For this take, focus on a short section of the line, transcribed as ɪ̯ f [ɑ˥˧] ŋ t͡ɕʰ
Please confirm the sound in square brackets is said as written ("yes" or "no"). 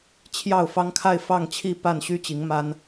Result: yes